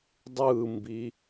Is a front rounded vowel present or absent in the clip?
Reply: absent